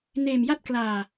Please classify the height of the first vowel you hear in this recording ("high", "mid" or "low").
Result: mid